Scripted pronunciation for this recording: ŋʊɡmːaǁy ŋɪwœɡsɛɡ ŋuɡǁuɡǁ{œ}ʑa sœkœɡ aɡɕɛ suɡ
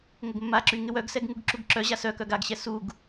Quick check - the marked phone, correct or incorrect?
correct